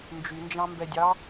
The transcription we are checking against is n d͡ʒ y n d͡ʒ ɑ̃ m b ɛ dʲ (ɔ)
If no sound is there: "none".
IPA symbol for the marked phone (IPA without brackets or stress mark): ɑ